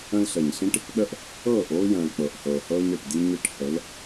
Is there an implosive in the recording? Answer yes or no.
yes